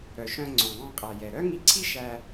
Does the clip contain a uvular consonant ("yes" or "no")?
yes